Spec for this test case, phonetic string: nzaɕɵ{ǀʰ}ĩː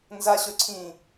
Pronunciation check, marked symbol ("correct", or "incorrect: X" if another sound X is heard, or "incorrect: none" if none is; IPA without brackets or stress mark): correct